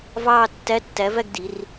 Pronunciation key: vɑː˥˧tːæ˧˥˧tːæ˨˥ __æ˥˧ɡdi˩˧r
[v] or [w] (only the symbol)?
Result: v